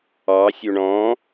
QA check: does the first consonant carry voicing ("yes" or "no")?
no